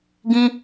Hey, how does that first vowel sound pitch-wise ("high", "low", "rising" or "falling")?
high